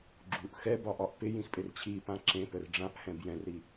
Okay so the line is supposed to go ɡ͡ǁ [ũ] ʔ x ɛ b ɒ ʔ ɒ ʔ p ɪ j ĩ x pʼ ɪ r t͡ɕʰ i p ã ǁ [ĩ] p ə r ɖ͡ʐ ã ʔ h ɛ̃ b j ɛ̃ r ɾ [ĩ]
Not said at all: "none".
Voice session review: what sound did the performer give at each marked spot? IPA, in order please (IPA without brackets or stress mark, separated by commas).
u, ẽ, i